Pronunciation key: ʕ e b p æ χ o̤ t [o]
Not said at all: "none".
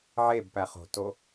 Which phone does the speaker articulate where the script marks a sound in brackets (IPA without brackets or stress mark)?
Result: o